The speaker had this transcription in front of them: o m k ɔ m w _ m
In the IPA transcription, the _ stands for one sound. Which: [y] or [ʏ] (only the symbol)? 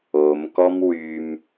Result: y